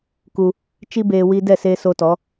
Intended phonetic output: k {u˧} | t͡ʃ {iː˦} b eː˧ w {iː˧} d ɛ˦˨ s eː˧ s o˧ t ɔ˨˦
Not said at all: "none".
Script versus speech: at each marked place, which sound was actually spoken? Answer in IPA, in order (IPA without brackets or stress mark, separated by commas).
u˧, i˦, iː˧